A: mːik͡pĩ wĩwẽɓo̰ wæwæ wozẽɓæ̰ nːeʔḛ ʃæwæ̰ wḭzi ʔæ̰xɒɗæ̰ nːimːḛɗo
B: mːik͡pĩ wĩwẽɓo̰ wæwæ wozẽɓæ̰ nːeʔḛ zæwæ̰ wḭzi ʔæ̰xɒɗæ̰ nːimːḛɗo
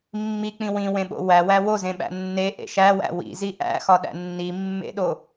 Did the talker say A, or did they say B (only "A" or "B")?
A